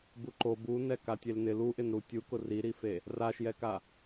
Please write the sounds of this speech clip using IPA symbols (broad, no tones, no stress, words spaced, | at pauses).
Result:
buǃo bu nɛkatʲelnɪ luʔɪnɾu tʲukʊ riɾife | raʃjɛka